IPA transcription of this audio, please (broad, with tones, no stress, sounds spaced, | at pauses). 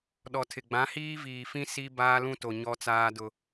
ɗ ɔ˨ tʰ ɪ˨ ɡ͡b ã˨˦ h iː˦ v iː˨ f ĩ˦ s i˦ b aː˦ l ũ˦ t o˨ ɲ ɔ˦ t͡s aː˦ d ʊ˦